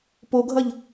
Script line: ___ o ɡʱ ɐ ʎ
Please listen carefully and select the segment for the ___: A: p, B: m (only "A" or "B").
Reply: A